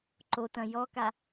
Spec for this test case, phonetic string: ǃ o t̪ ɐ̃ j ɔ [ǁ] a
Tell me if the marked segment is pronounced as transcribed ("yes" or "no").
no